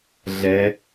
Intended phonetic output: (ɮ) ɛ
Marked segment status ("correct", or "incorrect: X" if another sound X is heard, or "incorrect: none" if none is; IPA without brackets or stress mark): correct